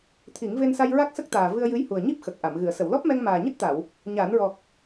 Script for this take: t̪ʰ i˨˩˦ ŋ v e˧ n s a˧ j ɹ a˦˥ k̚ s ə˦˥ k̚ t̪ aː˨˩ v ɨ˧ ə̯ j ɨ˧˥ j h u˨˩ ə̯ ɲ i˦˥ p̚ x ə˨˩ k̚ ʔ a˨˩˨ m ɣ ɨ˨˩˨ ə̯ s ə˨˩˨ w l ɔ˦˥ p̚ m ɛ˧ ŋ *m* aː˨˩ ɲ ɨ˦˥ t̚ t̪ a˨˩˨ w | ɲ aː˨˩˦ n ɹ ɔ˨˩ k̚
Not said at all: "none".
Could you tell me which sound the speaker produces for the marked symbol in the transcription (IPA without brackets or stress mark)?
m